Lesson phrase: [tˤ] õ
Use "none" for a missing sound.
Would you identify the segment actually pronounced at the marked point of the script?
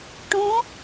ʈ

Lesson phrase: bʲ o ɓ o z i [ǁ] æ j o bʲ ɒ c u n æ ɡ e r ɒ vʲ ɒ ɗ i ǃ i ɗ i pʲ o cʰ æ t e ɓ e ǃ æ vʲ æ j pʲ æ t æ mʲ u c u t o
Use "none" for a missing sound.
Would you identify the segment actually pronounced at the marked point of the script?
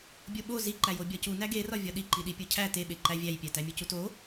ǃ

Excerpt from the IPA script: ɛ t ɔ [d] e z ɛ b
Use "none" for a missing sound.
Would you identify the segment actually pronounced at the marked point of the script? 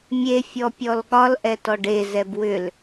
ɖ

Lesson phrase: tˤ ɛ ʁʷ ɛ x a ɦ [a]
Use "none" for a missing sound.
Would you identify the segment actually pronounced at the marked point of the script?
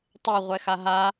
a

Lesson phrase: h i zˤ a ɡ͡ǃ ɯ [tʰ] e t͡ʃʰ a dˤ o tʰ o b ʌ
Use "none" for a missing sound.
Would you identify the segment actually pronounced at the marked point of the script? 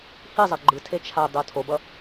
tʰ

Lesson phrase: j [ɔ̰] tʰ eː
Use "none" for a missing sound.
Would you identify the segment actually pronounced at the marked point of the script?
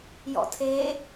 ɔ̰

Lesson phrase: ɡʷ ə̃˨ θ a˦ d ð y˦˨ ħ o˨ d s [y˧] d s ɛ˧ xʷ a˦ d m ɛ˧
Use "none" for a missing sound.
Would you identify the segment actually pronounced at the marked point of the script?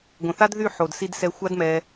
i˧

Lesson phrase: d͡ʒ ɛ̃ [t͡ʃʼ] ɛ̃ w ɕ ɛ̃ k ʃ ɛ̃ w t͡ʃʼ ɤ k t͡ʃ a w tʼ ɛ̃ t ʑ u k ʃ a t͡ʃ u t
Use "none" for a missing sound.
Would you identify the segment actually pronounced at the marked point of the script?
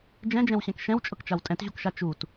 d͡ʒ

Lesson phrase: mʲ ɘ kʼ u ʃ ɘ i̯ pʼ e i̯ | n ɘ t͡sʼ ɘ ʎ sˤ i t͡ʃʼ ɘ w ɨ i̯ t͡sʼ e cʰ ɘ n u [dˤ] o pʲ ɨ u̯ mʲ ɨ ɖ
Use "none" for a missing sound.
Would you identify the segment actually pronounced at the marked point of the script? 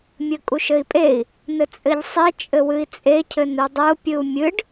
dˤ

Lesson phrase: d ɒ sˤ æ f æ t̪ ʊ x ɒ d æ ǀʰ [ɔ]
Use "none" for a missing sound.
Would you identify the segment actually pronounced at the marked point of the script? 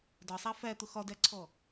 ɔ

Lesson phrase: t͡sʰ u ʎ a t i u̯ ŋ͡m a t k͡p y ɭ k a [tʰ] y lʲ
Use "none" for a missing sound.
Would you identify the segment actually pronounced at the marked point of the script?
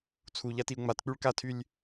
tʰ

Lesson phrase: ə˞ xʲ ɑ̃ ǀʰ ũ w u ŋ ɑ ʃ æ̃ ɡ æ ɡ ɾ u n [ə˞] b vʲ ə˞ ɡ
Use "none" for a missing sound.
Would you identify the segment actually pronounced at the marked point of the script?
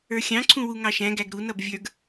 ʌ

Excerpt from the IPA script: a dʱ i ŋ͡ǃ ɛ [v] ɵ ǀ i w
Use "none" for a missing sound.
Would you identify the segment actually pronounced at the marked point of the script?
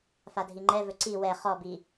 v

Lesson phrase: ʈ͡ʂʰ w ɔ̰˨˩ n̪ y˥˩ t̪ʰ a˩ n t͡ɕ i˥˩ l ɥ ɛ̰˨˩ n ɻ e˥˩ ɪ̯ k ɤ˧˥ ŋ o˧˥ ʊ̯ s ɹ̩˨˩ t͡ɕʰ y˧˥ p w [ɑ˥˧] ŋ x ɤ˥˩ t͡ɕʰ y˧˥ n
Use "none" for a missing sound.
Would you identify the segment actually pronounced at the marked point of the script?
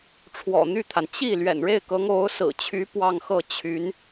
ɑ˥˧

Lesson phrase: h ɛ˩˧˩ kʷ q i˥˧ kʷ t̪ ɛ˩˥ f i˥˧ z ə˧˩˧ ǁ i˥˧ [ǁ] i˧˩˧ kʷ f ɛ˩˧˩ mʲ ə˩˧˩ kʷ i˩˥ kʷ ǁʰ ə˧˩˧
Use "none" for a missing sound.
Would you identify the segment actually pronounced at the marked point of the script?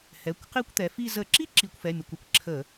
ǁ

